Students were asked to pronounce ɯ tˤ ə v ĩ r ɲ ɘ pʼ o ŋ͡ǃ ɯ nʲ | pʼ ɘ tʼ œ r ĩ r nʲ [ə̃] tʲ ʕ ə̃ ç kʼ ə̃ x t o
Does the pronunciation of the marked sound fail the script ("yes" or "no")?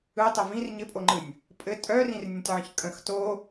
no